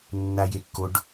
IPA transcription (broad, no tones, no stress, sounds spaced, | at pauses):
nː a j e kː o ɖ